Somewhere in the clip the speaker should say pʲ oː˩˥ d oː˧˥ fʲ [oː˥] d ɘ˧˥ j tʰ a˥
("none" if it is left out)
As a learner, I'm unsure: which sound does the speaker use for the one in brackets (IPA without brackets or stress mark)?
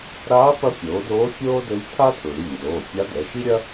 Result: oː˥